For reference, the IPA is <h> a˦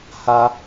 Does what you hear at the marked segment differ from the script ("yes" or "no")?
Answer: no